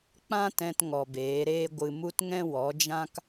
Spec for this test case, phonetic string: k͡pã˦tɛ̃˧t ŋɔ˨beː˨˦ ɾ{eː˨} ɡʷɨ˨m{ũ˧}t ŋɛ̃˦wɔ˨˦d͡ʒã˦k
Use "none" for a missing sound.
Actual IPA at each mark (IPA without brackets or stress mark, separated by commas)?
eː˦, u˧